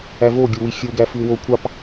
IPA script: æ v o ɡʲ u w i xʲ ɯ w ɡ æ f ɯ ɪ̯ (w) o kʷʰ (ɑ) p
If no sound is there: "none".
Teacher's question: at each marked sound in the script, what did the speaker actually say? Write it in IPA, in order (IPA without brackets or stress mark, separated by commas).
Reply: w, ɑ